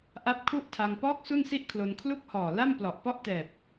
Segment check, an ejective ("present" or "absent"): absent